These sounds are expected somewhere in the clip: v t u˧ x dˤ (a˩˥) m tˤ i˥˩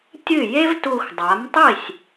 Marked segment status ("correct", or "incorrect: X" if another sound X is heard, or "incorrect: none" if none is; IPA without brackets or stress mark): correct